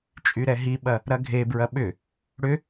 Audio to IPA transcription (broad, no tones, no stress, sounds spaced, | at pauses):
t͡ʃʼ y ɾ ɛ ɦ i ɓ ɐ | ɾ ɐ ɡʱ e b ɹ ɐ ɓ ʏ | ɽ ʏ